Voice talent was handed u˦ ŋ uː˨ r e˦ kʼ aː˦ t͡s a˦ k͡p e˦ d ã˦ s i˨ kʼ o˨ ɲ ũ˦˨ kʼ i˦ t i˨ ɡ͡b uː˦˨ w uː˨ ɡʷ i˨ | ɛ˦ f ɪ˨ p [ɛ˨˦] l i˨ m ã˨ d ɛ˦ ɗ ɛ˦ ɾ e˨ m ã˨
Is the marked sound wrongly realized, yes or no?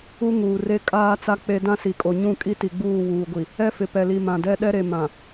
yes